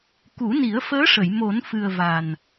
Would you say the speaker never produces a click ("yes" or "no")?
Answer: yes